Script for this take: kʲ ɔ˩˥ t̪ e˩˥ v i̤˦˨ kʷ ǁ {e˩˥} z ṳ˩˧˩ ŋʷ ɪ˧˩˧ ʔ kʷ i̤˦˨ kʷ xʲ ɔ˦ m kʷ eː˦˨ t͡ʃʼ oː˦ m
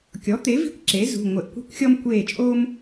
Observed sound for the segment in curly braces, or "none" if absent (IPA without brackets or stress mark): e˩˥